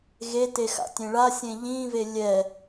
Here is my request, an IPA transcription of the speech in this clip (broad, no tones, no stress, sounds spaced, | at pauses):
ɣ e t e x a̰ tʲ ẽ ɭ a sʲ ẽ ʎ ĩ v e lʲ ɛ